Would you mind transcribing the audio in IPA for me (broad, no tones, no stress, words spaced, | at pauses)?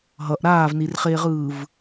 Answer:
ɦʌʔ ɾaːvnirχeːʁɯːv